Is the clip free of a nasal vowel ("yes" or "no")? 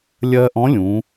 no